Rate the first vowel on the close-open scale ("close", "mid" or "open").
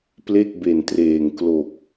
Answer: mid